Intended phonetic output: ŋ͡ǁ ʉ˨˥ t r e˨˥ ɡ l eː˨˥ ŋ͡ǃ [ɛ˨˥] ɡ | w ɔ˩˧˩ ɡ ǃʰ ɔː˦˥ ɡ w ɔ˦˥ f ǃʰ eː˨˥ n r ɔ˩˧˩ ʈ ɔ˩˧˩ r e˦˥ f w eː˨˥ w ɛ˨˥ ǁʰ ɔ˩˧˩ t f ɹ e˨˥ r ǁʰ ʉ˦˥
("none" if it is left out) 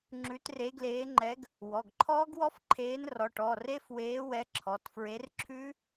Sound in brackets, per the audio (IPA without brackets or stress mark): ɛ˨˥